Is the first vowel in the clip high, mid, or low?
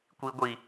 high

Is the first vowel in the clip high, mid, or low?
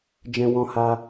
mid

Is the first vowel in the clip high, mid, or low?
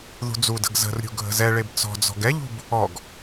high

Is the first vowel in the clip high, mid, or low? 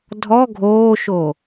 mid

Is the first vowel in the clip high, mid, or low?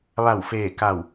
low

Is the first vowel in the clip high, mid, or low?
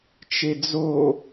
mid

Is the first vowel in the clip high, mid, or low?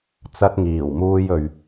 low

